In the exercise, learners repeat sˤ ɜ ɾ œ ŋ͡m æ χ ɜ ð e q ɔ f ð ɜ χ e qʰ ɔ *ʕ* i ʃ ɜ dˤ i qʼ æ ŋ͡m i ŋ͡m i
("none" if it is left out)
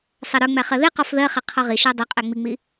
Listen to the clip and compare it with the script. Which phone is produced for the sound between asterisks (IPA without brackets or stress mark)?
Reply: ʁ